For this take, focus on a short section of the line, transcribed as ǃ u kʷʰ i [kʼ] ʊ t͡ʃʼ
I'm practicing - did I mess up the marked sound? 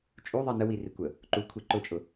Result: yes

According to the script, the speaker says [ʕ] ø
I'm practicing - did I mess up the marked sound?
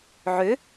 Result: no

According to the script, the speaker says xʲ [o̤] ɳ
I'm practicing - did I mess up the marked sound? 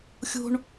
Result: no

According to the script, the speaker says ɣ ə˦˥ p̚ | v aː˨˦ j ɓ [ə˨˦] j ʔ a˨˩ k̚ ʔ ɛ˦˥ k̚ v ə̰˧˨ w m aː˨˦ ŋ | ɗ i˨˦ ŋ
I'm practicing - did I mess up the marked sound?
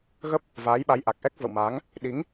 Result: yes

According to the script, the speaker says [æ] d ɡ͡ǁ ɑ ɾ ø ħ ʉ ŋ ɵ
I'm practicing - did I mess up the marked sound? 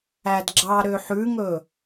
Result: no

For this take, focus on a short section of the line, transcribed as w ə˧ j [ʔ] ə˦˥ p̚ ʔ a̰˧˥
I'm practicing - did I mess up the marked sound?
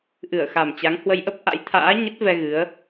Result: no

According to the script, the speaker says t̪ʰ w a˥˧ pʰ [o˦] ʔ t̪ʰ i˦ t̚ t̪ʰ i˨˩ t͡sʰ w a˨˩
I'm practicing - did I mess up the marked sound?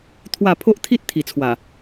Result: no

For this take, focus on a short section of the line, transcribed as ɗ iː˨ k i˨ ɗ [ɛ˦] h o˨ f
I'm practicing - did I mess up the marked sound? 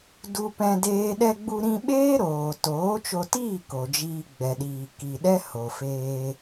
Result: no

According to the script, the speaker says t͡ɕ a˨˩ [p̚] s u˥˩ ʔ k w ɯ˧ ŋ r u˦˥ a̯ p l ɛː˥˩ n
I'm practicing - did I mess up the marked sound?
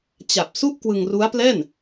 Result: no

